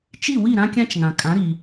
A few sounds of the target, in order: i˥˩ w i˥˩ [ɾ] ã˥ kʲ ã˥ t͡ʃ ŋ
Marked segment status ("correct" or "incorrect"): correct